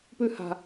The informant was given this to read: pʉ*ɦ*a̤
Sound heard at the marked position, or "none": h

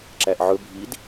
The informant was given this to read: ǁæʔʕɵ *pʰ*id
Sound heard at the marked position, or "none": bʱ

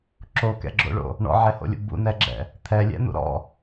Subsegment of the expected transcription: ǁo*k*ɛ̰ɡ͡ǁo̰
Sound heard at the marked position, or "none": k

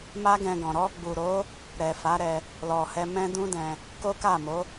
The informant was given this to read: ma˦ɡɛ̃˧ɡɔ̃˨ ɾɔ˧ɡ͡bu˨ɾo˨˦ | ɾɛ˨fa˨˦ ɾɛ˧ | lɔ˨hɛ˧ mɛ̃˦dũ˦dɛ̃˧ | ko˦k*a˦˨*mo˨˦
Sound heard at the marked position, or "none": a˦˨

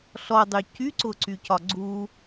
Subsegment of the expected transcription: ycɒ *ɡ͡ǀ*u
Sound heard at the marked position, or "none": ɡ͡ǀ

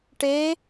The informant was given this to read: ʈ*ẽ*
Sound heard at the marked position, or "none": e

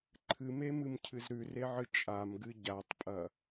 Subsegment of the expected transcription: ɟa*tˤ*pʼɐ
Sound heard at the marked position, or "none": tˤ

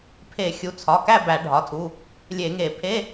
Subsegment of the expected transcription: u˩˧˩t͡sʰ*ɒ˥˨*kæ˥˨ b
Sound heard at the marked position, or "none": ɒ˩˧˩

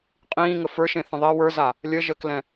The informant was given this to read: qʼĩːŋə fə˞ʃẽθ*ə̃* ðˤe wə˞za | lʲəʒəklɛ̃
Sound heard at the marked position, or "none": ə̃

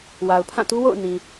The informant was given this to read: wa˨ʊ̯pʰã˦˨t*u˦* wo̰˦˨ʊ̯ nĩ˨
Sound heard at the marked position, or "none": u˦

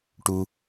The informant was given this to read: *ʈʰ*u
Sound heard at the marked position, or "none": ʈ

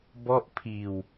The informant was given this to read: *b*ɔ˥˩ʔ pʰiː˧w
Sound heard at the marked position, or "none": b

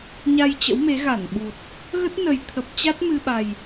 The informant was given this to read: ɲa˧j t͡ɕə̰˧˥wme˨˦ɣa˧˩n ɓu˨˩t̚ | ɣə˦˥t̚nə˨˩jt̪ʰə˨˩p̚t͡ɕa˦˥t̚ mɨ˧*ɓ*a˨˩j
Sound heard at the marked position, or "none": ɓ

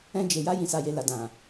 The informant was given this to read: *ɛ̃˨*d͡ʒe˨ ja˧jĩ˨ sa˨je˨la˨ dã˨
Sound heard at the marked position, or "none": ɛ̃˧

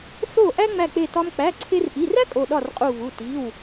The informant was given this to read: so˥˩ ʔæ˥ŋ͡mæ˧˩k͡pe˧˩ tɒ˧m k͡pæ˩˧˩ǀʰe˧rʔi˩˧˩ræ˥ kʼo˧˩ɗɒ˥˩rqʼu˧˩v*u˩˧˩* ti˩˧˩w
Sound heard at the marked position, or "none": u˩˧˩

